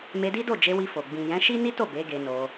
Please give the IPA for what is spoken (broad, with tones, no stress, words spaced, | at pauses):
me˧di˦do˦˨d͡ʒe˧ wi˧fo˨ ɡ͡bĩ˨jɛ̃˨˦ ʃi˦ni˦to˦˨ be˨˦ ɡe˧no˧